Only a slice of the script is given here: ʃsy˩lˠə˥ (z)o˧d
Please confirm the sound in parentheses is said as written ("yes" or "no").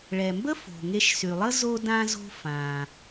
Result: yes